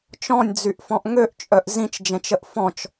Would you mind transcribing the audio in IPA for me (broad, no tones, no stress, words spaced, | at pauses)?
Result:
t͡ʃɔ̃nʲd͡zyʔfɔ̃ʔ ŋøʔt͡ʃʼœʔ zĩt͡ʃd͡ʒɛ̃t͡ʃəʔ fɔ̃t͡ʃ